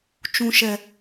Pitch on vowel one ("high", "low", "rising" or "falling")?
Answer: high